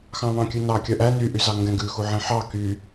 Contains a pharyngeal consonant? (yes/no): yes